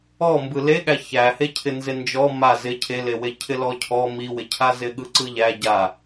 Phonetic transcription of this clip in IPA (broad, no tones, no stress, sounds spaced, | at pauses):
ɔ m b ɯ l e ɠ æ ç æ h e cʰ ɪ n z ɪ n d͡ʒ ɔ m a z ɪ cʰ e l e w e cʰ ɪ l ɔ cʰ ɔ m i w ɪ cʰ a z ɪ ɠ ɯ ǀ ɯ ʎ æ ɟ a